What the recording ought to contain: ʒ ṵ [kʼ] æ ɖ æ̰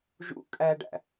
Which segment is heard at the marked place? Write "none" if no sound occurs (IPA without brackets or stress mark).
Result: kʼ